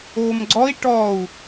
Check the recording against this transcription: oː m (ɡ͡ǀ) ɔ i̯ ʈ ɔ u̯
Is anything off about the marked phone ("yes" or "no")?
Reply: no